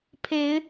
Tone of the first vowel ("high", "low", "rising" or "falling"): rising